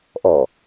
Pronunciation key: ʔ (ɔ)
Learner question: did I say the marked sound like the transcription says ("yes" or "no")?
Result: yes